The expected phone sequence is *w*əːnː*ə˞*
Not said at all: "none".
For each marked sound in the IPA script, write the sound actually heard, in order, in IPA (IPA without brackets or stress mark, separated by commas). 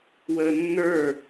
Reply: w, ə˞